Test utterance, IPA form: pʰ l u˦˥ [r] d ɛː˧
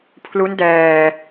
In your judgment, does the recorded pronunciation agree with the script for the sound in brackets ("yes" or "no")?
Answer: no